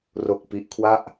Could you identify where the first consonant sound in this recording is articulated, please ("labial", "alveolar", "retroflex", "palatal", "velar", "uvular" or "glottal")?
alveolar